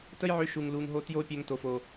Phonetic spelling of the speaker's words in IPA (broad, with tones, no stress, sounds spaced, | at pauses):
t ə˦ j ʕ ø˧ ʃ u˨ ŋ l u˨ ŋ ɦ o˧ t j o˦ pʲ ø˧ ŋ t o˨ f o˨